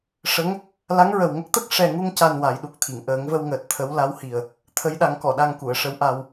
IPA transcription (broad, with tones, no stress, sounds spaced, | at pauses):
ʂ ə˧˥ ŋ | l a˧˥ ŋ ɹ ə˨˩ w ŋ ə˦˥ k̚ t̪ ə˦˥ k̚ ʂ ɛ˨˩ ŋ u˧ ŋ c a˨˩ n w a˨˩˦ j ɗ u˨˩ k̚ t̪ʰ i˨˩˨ ŋ ʔ əː˨˩˦ ŋ v ə˧ w ŋ əː˨˩ t̚ t̪ʰ ə˧˥ w l a˧˥ w h i˨˩ ə̯ | t̪ʰ ə˧˥ j ɗ a˨˩˦ ŋ k ɔ˨˩˨ ɗ a˧ ŋ k u˨˩˨ ə̯ ʂ ə˧˥ w ʔ a˧ w